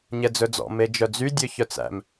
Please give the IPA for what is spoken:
ɲ ɛ d͡z ɵ d͡z ɔ̰ m e d͡ʒ œ d͡z y dʲ ø ç œ t͡s æ̰ m

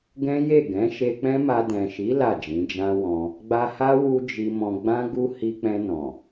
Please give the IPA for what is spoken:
ɡ ɛ̃˦ j e˦˨ ɡ ɛ̃˨˦ ʃ e˧ k͡p ɛ̃˦ m a˧ d ɛ̃˨ ʃ i˨˦ l a˦˨ d͡ʒ ĩ˨˦ d͡ʒ ã˧ w ɔ̃˧ | ɡ͡b a˧ h a˦ w u˦ d͡ʒ i˧ m ɔ̃˧ ɡ͡b ã˦ ɡ u˦ h i˧ k͡p ɛ̃˧ n ɔ̃˨

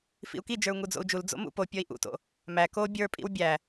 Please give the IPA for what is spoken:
f ḭ u̯ k i d͡ʒ ə˞ u̯ ŋ u d͡z o̰ u̯ d͡ʒ u l d͡z o̰ m ṵ p o pʲ ɔ i̯ ʔ ṵ t o̰ | m æ k o bʲ ə˞ pʼ ḭ w bʲ æ

